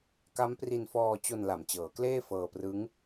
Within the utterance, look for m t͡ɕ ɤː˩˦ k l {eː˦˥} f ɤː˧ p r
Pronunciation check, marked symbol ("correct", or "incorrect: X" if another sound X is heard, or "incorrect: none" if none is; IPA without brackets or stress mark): incorrect: eː˥˩